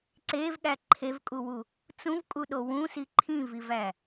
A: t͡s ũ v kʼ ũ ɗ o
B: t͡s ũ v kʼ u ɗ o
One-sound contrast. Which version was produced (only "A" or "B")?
B